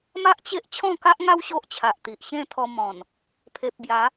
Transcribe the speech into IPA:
ma˦ʔt͡ɕe˦ʔ t͡ɕʰɔ̃˥˧ka˦ʔŋa˦w ɕo˦ʔt͡ɕʰa˨ʔt̪i˨ʔ ɕẽ˥˧t̪ʰɔ˧mɔ̃˨˩n | pʰe˨p̚bja˨˦

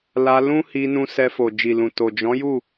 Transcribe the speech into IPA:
la˧lũ˦hi˧ nũ˧sɛ˧ fo˨d͡ʒi˨lũ˨ to˨ d͡ʒɔ̃˨˦ju˦˨

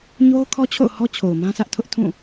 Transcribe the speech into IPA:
ɲo˦ʊ̯kʰɔ˦t͡ɕʰo̰˦˨ʊ̯hɔ˦ t͡ɕʰo˨ʊ̯mã˦sä˦ʔ tʰʊ˦ʔtʰũ˦˨

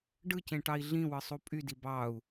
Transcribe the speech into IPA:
ɖɯcẽʈɑi̯ ɮĩwɯsˤu pʼydi bɑu̯

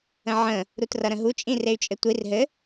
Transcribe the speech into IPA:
ə̃ʕə̃ | ɾutrʌɾə̃ɦu t͡ʃʼĩrey̯t͡ʃʼɘtʷir ɦɘ

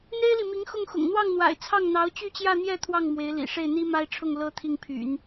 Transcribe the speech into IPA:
n̪e˥ɪ̯li˨mi˧˥ŋ xʊ˥˩ŋxʊ̰˨˩ŋ n̪wɑ˥˩ŋn̪wa̰˨˩ɪ̯ t͡sʰɑ˥˩ŋ n̪ɑ˧˥ʊ̯t͡ɕy˥˧t͡ɕjä˥˧n̪jɛ˥˧ t̪ʰwɑ˥˩ŋ mwe˧˥ɪ̯lḭ˨˩ ʂe˥˩ɪ̯n̪i˥ma˥ɪ̯ʈ͡ʂʰʊ˥˩ŋ lɤ˥ t̪ʰi˥˩ŋpʰy̰˨˩˦n

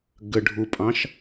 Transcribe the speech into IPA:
ɡəɖʱupʼɑ̃ʃ

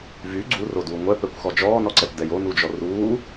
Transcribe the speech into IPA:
vy ɡ͡ǀuroduː ŋʷɛpɛkʷxɔ d͡ʒɔːnɔǀɛpdɛj onud͡ʒɔ ruː

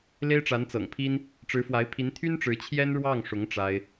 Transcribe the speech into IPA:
le˥ɪ̯ʈ͡ʂa˧˥nt͡sɤ̰˨˩ŋpʰi˥n | ʈ͡ʂɻ̩˧˥fwa˧˥ɪ̯pʰi˧˥n t̪ʰy˥nʈ͡ʂɻ̩˧˥ t͡ɕʰjɛ˥n ɻwɑ˥˩ŋʂʊ˧˥ŋ ʈ͡ʂa˥ɪ̯

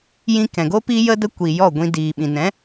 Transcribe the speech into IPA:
jĩ˧ kɛ̃˨ɡo˦ pi˦jə˦ də˦kʷi˨ jɔ˦˨ɡʷĩ˧ diː˨ɓĩ˨nɛ̃˨˦

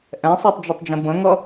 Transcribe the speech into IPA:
ʔɛ̃sˤɛtˤd͡ʒɐtˤd͡ʒə̃ bə̃ŋʌ

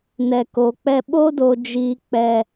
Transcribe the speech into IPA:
nɛ˨ko˨k͡pɛ˦ ɓo˦do˨ d͡ʒiː˨k͡pɛ˨

